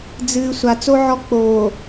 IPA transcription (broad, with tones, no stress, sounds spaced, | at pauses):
d͡z ɨː˨ sʷ a˨ t͡s o˦ ʕ ɔ˦ k͡p oː˨